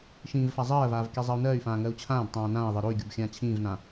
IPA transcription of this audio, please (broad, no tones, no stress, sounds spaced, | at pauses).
ʃ ĩː v f a zˤ ɜː v aː v k i zˤ ɜ u̯ n ɜː y̯ f ãː ŋ ɜ u̯ t͡ɕʰ ãː b tˤ ãː n ãː i̯ ðˤ ɜ ɾ o y̯ ɡʲ o b xʲ ãː t͡ɕʰ ĩː v n ã